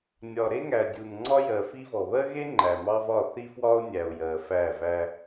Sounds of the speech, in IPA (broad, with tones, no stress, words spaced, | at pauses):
nʲɒ˨ ɾe˦ŋæ˨dʲu˨nŋ͡ǀɒ˦ jɜ˨fi˦vɔ˨ βɜ˦ɣe˦ ŋ͡ǃæ˨mɑ˦ vɒ˦˨θi˦fwɒ˦o̯ nʲæ˨o̯ jɜ˨fæ˦˨væ˦